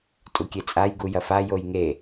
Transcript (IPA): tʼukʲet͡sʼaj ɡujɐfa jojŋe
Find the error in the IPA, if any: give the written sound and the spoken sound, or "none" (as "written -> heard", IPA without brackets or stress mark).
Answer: none